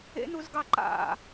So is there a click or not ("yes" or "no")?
yes